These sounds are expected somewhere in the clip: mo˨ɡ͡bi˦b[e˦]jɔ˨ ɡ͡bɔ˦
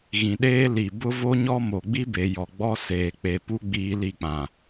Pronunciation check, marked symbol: incorrect: e˨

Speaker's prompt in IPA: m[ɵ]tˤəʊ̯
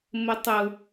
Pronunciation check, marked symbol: incorrect: ə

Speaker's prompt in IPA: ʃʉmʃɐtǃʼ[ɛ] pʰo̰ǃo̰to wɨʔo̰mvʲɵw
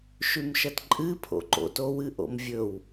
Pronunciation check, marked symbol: incorrect: ɨ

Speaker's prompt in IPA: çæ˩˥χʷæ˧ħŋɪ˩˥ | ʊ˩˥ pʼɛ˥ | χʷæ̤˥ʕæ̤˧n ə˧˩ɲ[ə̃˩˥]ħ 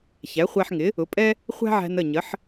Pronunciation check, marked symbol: incorrect: ə˩˥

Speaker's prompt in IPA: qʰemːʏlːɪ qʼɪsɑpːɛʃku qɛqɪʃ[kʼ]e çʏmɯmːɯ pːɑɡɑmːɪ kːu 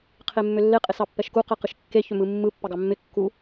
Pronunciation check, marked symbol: incorrect: kː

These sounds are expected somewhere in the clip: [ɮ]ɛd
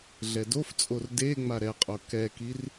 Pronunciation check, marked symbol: correct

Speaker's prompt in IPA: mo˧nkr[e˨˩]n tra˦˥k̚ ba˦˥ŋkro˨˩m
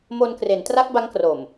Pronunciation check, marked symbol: incorrect: e˩˦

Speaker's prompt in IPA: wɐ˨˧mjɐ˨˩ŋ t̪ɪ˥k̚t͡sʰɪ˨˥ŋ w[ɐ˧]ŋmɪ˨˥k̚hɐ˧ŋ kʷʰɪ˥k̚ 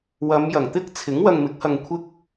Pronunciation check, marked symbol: correct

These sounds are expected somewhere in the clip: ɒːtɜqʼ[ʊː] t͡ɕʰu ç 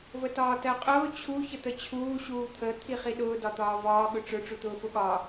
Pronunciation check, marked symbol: correct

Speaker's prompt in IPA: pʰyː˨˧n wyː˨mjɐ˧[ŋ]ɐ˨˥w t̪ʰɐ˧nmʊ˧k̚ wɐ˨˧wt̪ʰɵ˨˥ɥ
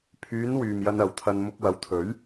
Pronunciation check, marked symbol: incorrect: n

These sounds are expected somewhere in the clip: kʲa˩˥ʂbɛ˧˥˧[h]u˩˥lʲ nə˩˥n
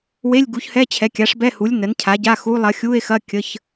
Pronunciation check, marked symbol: correct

